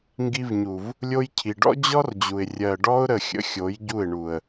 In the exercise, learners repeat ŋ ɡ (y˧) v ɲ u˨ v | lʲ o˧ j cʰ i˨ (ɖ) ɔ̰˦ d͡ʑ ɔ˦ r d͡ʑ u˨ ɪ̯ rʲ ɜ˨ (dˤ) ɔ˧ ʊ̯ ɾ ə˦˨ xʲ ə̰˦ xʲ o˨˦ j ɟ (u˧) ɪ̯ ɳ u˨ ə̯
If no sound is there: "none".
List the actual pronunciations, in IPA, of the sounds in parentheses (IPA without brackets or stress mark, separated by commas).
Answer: i˧, ɖ, ɖ, u˦˨